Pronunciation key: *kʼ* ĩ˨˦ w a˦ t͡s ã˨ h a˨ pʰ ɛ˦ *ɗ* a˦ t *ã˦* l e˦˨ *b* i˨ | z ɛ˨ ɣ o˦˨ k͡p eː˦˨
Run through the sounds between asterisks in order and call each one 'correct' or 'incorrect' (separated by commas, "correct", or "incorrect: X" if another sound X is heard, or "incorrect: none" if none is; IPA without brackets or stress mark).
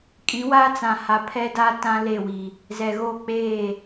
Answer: correct, incorrect: d, correct, incorrect: w